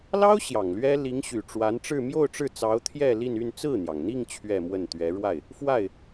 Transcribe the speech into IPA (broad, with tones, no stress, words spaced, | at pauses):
lɑ˥ʊ̯ ɕjɑ˨˩ŋlɥɛ˥ li˧˥ŋɕy˨˩ʈ͡ʂwa˧˥nʈ͡ʂɻ̩˥˧ mjo˥˧ʊ̯ʈ͡ʂɻ̩˥˩t͡sɑ˧˥ʊ̯ t̪ʰjɛ˥˧li˥˧n y˥˧nt͡sɹ̩˥˩n̪jɑ˩ŋn̪i˥˧ŋ t͡ɕʰɥɛ˥˧mwə˥˩n t̪ɥɛ˧˥ɻwa˥˩ɪ̯ | fwa˥˩ɪ̯